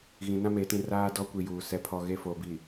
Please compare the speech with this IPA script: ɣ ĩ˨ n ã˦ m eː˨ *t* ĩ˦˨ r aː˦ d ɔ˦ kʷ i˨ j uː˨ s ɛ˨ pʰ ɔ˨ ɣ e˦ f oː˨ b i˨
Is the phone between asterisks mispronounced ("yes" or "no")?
no